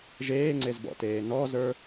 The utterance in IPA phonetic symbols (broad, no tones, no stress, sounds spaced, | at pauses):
ʒ eː ŋ͡ǀ e z b ɔ̰ t eː n ɔ z ə˞